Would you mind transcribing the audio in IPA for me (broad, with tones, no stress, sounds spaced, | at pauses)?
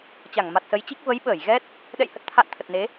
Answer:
t͡ɕ a˧˩ ŋ m a˨˩ t̚ s ə˨˦ j t͡ɕ i˦˥ k̚ v ə˨˦ j ɓ əː˧˩ j ɣ ɛ˦˥ t̚ | ɗ ɛ̰˧˨ j h ə˨˩ t̚ t̪ʰ a̰ː˧˨ n t̪ʰ ə˨˩ t̚ n e˨˦